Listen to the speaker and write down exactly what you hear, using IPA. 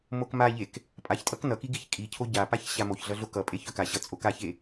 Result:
m o k m a ʎ e k | pʼ a ç tʼ ʌ k n ʌ k i ɡ i ç kʼ i cʰ o ɟ a p a ç ɕ a m o ç ɮ ʌ ɮ o k ʌ pʼ e ç œ k a ɕ ʌ t͡sʼ o k a ç e

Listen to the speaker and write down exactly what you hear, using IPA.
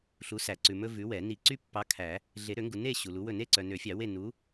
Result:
ɬ u˨˥ s æ˨˩˦ ǀ ʉ˨ m ɵ˦ v ʉ˨˥ w ɛ˨˩˦ n i˨˩˦ ǀ y˦ pː ɑ˨˥ kʰ æ˨˩˦ | ɮ e˨˩˦ ɾ ø˨˩˦ ŋ ɡ u˨ n e˥˨ ɕ u˨ l u˨˥ w ɵ˥˨ n e˥˨ ǀ œ˨ n ø˨˩˦ fʲ ɑ˨˩˦ w e˥˨ n u˨˥

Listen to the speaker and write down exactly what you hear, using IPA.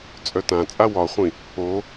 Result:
t͡sʼ œ t ã t͡sʼ a w ɒ χʷ ĩ | o

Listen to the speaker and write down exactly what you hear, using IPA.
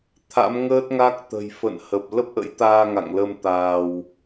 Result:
t̪ʰ a̰˧˥ m ŋ əː˦˥ t̚ ŋ a˦˥ k̚ t̪ ə̤˨˩ j f ə̰˧˨ n h ə˨˩ p̚ l ə˦˥ p̚ ʔ ə̰˧˥ j t̪ aː˧ ŋ a̰˧˨ ŋ l ə˧ m t̪ aː˧ w

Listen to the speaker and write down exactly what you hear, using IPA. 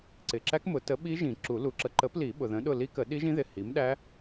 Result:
ǀ ɪ˨ ǁ æ˦˥ k m ʊ˨˩˦ t ə˨˥ ɓ i˦˥ ʒ ĩ˨˩˦ ǁ u˨˩˦ l u˨˥ ǁ ə˨˥ ǃ ə˨˥ p l i˨˩˦ ɓ ʊ˨ ð ə̃˨˥ ɗ ʊ˦˨ l i˦˥ k ə˨˩˦ ɗ i˦˥ ʒ ĩ˦˥ ð ɪ˨ h i˨˥ m ɗ æ˦˥

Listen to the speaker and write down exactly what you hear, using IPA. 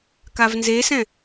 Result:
k a v n z e s ɛ̃

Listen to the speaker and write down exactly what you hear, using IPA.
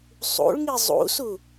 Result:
sˤ ṵ ɭ ŋ i zˤ ṵ s u

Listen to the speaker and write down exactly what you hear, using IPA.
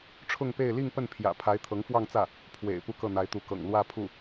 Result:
ʈ͡ʂʰ ʊ˥˧ ŋ p e˥˧ ɪ̯ l i˥˧ ŋ p ə˥˩ n pʰ j ä̰˨˩ pʰ a˧˥ ɪ̯ t̪ʰ ɤ˧˥ ŋ f w ɑ˥˧ ŋ t͡s ä˥˩ | pʰ w ḛ˨˩ ɪ̯ p u˥˧ k ɤ˥˩ n̪ a˧˥ ɪ̯ t̪ u˧˥ k ɤ̰˨˩ ŋ l w ä˥˧ pʰ u˥˩

